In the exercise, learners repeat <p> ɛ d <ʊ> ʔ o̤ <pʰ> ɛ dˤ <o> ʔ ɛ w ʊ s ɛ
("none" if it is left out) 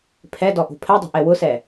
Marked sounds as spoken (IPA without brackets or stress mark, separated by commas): pʰ, ɔ, pʰ, o̤